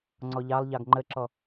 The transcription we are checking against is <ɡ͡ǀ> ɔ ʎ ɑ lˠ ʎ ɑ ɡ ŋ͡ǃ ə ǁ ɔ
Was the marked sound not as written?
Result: yes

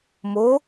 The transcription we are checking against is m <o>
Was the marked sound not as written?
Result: no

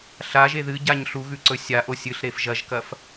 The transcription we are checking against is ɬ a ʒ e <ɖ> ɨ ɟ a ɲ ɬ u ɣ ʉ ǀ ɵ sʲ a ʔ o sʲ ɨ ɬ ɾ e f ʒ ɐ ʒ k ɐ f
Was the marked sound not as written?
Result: yes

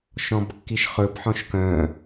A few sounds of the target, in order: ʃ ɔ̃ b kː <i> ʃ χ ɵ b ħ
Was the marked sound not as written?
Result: no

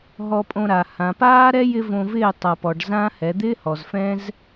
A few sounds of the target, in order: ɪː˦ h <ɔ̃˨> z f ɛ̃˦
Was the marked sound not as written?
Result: yes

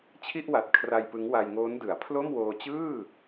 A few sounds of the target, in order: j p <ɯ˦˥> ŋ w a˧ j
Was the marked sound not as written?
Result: no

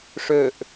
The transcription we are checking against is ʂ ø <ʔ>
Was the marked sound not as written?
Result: no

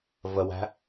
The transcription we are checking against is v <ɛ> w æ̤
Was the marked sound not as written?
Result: yes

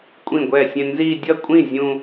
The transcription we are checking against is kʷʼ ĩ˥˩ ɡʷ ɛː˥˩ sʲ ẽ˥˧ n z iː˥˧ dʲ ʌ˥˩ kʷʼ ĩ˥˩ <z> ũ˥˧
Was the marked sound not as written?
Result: yes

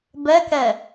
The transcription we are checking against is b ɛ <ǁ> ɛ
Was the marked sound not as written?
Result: yes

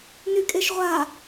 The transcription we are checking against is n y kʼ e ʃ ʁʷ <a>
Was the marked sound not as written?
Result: no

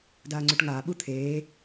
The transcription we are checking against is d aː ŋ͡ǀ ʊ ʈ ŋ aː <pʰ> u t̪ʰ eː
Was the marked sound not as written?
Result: yes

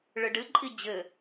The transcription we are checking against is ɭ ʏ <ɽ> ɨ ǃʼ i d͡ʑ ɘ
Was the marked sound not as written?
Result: yes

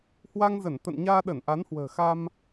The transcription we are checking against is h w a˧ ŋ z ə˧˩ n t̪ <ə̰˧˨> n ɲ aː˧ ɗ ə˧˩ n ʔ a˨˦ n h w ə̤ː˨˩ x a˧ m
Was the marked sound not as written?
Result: no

